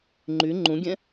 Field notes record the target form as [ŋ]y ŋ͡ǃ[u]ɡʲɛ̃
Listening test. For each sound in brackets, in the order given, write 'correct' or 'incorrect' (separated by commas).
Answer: incorrect, incorrect